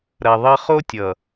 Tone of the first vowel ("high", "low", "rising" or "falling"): low